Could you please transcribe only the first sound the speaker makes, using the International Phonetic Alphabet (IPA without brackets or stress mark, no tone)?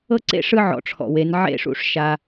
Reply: ɤ